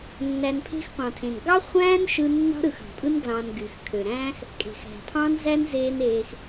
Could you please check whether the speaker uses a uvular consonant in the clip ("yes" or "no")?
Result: yes